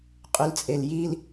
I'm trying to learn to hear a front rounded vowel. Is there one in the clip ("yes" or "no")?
yes